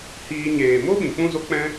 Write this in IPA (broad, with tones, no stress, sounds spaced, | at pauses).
h iː˧ ɲ eː˨ m o˦ ɓ ĩ˨ k͡p ũ˦ z o˦ k͡p ɛ̃˦